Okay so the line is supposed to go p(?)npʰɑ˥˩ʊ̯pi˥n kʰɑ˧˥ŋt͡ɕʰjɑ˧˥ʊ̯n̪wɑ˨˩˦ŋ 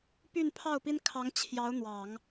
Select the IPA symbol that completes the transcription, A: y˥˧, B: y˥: A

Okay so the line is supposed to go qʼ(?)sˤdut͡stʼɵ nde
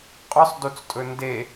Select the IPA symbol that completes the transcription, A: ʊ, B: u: A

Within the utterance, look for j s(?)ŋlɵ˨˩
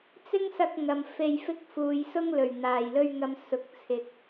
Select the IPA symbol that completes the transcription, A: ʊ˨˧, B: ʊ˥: B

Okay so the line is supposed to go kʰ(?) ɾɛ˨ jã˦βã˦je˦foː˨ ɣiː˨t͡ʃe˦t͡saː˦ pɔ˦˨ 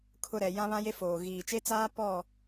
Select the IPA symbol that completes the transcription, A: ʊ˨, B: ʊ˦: A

